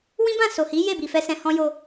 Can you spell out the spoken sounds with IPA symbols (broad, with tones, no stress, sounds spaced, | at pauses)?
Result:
w ĩ˦ b ã˦˨ s o˨ h i˨˦ j e˦˨ b i˨ f ɛ˧ s ɛ̃˨ h ɔ̃˧ j o˧